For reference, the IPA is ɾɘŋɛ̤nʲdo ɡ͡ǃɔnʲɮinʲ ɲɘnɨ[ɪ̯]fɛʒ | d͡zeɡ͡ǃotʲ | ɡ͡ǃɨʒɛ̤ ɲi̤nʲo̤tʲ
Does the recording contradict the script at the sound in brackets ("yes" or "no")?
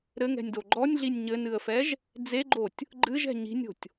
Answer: yes